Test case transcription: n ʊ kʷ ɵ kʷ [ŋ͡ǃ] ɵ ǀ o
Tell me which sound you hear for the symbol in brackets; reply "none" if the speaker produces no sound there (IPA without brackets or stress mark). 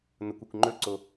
ŋ͡ǃ